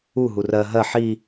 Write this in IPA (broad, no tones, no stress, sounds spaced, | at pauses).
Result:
u ɦ u r ɜ ɦ ɜ ħ i